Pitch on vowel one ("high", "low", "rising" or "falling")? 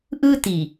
high